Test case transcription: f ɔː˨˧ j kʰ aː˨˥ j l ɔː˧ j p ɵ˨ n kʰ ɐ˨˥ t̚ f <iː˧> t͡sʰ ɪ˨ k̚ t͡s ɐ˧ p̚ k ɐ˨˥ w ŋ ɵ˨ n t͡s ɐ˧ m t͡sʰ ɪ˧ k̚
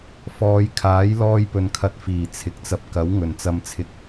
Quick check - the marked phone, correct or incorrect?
incorrect: iː˨˩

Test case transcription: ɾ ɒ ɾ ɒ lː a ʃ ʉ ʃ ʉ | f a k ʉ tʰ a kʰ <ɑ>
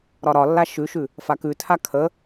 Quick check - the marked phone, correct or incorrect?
incorrect: ə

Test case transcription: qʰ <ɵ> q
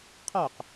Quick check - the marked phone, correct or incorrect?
incorrect: o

